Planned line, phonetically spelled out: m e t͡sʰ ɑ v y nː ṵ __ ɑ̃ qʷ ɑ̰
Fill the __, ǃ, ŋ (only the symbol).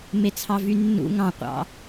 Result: ŋ